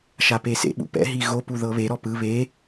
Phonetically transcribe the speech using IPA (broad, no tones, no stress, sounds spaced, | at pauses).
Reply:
ʃ a p e s ḛ ɓ ṵ p ɛ̰ ɦ i ɣ o p u ð ɤ β e ɾ ɔ p ɯ β e